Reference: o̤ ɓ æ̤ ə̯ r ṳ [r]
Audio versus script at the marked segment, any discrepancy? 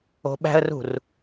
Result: no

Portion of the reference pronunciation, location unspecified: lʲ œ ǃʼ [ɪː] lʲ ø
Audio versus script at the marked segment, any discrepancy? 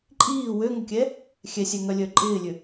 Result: no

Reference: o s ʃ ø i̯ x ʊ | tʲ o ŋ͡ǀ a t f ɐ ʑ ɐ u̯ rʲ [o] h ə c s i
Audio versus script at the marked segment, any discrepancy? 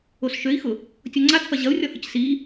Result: yes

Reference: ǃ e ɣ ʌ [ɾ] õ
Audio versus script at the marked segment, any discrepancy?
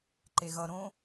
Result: no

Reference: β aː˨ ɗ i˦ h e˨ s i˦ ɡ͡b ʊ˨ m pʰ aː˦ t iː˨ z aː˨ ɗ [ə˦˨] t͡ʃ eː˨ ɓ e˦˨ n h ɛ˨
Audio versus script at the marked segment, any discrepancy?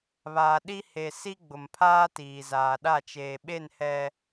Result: yes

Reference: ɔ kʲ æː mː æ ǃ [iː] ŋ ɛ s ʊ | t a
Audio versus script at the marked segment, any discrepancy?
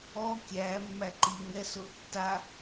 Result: no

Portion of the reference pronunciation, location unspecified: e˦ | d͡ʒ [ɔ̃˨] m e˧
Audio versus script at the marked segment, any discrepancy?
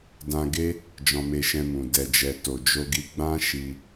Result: yes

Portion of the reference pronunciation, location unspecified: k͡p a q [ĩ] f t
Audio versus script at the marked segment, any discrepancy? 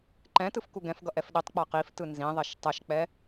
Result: yes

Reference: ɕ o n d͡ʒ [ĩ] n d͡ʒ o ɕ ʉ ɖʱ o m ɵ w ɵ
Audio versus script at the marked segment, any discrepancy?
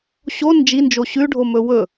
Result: yes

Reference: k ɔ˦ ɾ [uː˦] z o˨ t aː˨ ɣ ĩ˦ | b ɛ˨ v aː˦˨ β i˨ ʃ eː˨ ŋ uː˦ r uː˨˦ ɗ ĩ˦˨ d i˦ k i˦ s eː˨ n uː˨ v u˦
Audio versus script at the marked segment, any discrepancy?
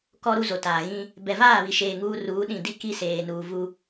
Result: yes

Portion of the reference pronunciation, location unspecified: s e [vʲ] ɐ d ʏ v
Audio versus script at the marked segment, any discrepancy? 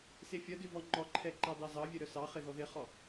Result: yes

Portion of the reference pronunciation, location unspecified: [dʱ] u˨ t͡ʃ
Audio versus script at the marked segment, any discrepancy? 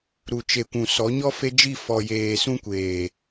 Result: yes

